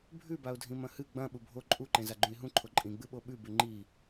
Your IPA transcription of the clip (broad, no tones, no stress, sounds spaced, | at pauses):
bʱ ʉ b a ʊ̯ dʱ ĩ m ɐ̃ h ɨ ɡ͡b ɐ̃ ɓ u bʱ o ǃʼ u ǃ ẽ z a ɡ͡ǃ ũ ɪ̯ ɦ ũ ǃʰ o ǃʼ ĩ ɡ͡b ɨ ɓ o ɓ ʉ b ʉ ŋ͡ǃ i